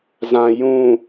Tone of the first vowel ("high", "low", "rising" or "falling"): low